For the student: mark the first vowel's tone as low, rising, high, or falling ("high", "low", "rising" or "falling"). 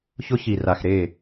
high